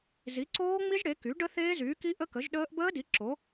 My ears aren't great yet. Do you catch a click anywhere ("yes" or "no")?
yes